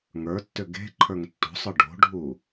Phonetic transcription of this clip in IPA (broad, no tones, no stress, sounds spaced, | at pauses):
ŋ ə˞ tː ʏ ɡ e̤ ǃʰ ə˞ ŋ tː o̤ sˤ ə˞ ɖ o̤ ɖʱ u